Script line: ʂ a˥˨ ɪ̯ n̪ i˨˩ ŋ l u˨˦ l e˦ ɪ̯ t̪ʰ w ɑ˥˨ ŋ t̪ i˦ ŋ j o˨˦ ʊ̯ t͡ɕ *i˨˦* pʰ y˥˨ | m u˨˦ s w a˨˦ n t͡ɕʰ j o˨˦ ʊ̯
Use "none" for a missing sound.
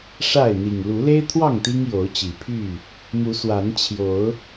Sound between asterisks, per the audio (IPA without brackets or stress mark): i˨˩